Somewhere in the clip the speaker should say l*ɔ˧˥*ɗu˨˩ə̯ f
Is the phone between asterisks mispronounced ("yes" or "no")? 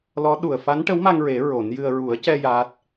no